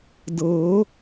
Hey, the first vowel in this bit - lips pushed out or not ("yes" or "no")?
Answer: no